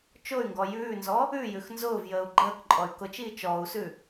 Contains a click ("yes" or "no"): yes